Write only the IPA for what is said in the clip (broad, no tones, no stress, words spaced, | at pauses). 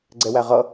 ɡ͡ǀɛwæʁʌ